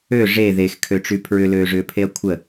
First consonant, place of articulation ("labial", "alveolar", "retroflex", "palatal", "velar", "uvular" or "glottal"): retroflex